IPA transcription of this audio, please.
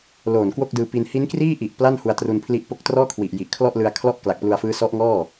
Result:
l oː˨˩ n k w o˥˩ k̚ d ɯː˧ p i˧ n h i˦˥ n k r iː˥˩ ʔ i˨˩ ʔ p l a˥˩ n h u˧ a̯ t r u˧ n pʰ l i˦˥ ʔ p o˦˥ k̚ t r ɔː˥˩ kʰ w i˨˩ ʔ j i˨˩ ʔ kʰ l ɔ˥˩ ʔ l ɯ˧ a̯ kʰ l ɔ˥˩ ʔ k l a˨˩ k̚ p l u˧ a̯ f ɯː˦˥ s ɔ˦˥ ʔ ŋ ɔː˥˩

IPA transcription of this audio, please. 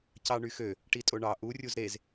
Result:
c ɑ ɳ y x ø | ʈ i tʼ o ɳ ɑ ʔ u rʲ u z ɾ e z

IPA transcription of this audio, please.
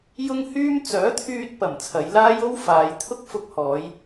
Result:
j ʊ˥ ŋ h yː˥ m t͡s œː˨˥ t̪ʰ yː˧ t̚ p ɐ˨˩ m t͡sʰ ɐ˨˧ j l aː˥ j o˥ w f aː˨˧ j t̪ʰ ʊ˥ k̚ f ʊ˧ k̚ h ɔː˨˧ j

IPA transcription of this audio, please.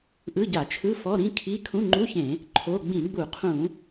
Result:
ʔ ɯ˧˥˧ ɟ a˧˩˧ t͡ʃʰ ɯ˧˥˧ f ɔ˧˥˧ ɾ ĩ˧˥˧ kʰ i˧˥˧ kʰ ũ˧˥˧ ŋ͡ǃ u˧˥˧ ç ẽ˧˩˧ | ǃʰ o˧˥˧ ɡ͡b ĩ˧˩˧ ɡ͡b u˧˩˧ qʰ ũ˧˩˧

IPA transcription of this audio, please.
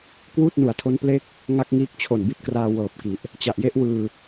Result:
k w uː˥˩ t̚ n u˩˦ a̯ tʰ o˦˥ n p l e˥˩ k̚ | ŋ a˥˩ k̚ ŋ iː˦˥ k̚ t͡ɕʰ o˨˩ n b i˦˥ t̚ k r aː˧ w ɤː˨˩ p̚ k i˨˩ ʔ | t͡ɕ a˨˩ ʔ j e˥˩ ʔ w ɯː˧

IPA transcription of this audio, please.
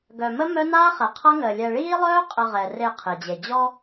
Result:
ɡ œ˨ m ə˦ m œ˦ n aː˦ χ ɛ˨ qʰ ʌ˦ ŋ əː˨ lʲ ɛ˨ ɭ iː˦ lˠ œː˦ qʼ ə˨ ʁ ɛ˨ r e˦˨ qʰ e˨ d͡ʑ e˨ d͡ʑ ɔ˦

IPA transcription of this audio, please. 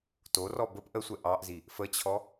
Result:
t o r ɔ b ə p ʔ ə sʷ ɛ ʔ ɑ ʔ z i | f ə t͡ɕʰ ɔ

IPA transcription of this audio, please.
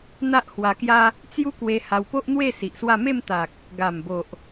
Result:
n̪ a˦ ʔ h w a˧ k j a˦ | t͡s j u˦ k w e˧ h a˧ w p o˦ ʔ n̪ w e˥˧ s i˨ ʔ s w a˥˧ m e˥˧ m t̪ a˨ k̚ | ɡ a˨˩ m b o˨ ʔ

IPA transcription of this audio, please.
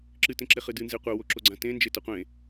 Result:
ǁ ɨ t ẽ ǁ e χ ɨ d ɨ n z e qʷ ɐ w o ǁ o ɡ͡ǀ ã t ẽ n d͡ʒ e t ɐ qʷ ẽ

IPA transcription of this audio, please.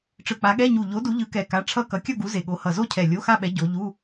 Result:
ʈ͡ʂ ɯ˨˩ k͡p a˨˦ ɠ ɛ˧˥˧ ɲ u˨˩ ʎ o˨˦ d u˨˦ ʎ ɯ˨˦ k ɛ˨˩ k a˨˦ ʈ͡ʂʰ ʌ˥˧ k ʌ˨˦ kʲ ʌ˥˧ ɡ u˨˦ z e˨˩ ɠ o˨˦ h ʌ˨˩ z o˥˧ cʰ ɛ˨˩ lʲ o˧˥˧ x a˥˧ ɓ ɛ˨˦ ɟ o˨˦ ʎ u˧˥˧

